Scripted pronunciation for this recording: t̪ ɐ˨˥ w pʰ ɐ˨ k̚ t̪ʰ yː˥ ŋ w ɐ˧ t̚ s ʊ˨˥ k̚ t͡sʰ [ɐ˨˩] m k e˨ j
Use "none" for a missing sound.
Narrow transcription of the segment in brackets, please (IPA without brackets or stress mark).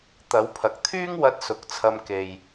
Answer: ɐ˧